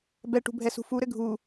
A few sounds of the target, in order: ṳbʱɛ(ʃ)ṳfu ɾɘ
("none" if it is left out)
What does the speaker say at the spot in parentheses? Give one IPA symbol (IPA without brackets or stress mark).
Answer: s